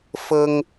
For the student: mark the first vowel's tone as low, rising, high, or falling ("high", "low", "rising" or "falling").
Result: high